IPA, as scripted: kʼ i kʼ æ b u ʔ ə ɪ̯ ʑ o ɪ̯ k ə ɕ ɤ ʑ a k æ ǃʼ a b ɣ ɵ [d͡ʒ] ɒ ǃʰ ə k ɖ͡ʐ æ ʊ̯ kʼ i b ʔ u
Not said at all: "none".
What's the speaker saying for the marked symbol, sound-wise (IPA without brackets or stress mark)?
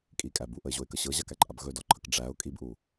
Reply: d